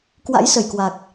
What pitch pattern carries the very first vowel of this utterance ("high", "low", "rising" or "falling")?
rising